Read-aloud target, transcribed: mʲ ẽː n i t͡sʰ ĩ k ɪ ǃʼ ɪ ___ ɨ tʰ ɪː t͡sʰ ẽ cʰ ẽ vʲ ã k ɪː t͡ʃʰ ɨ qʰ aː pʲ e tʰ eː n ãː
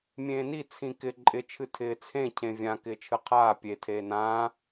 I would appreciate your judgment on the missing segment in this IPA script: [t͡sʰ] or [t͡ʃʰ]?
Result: t͡ʃʰ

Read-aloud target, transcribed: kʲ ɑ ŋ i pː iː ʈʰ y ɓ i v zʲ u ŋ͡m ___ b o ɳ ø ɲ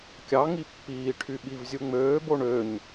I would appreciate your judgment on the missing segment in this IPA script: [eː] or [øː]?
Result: øː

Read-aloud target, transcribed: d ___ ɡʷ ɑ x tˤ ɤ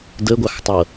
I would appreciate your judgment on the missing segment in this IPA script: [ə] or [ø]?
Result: ə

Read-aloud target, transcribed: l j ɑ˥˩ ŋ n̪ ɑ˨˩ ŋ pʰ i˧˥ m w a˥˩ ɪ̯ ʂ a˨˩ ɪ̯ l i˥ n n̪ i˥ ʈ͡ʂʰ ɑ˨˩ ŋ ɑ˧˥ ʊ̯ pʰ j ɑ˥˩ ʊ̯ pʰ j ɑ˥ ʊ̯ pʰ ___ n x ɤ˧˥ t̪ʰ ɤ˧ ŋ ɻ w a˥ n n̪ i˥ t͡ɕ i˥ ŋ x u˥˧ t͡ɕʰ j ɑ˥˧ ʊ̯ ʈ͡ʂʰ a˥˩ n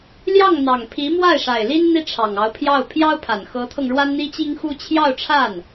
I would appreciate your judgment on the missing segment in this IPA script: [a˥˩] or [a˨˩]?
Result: a˨˩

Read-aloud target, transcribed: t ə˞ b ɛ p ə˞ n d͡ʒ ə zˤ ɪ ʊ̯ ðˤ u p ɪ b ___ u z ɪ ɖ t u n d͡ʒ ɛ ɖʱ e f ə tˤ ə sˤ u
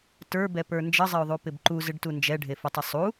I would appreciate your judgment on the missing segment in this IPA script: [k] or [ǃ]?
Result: ǃ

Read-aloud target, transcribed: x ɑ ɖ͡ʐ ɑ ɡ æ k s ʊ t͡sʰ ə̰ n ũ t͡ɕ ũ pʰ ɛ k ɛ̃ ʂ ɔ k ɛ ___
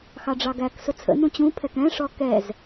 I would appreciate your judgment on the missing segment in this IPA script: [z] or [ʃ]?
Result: z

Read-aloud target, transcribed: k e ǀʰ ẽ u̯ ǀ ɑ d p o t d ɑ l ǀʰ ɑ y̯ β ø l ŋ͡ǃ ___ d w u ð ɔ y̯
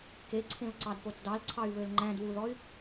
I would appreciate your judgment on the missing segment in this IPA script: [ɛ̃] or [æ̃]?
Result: æ̃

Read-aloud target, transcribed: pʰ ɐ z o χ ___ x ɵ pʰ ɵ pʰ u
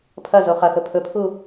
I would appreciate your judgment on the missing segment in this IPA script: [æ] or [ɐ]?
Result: ɐ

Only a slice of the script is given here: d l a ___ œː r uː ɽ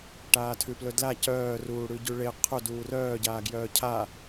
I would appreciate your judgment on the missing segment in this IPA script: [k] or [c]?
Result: c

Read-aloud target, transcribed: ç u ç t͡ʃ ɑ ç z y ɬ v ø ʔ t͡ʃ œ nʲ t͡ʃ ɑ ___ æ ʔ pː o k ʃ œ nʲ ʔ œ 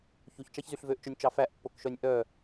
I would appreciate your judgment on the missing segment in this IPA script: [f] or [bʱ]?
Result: f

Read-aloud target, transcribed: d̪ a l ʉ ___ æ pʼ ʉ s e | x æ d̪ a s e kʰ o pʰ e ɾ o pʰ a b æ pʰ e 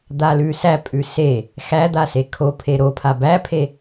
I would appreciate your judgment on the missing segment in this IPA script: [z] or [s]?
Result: s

